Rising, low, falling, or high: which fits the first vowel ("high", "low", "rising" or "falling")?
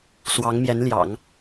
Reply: rising